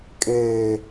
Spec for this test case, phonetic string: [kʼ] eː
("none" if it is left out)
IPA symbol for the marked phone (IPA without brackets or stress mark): kʼ